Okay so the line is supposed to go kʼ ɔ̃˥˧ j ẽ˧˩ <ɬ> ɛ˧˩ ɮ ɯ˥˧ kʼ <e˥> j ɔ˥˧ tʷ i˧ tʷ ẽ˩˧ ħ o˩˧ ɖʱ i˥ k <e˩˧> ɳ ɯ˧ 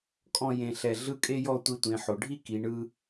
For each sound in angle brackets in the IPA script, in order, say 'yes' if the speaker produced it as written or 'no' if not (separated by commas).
yes, yes, no